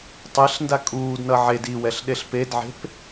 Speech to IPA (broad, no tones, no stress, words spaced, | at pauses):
tˤeɬnda kʼuːdnʌ ʕed iwɛɬɗeɬ pedʕe̤p